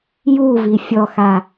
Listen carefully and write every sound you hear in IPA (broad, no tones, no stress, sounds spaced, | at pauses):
j u v i fʲ ɔ x a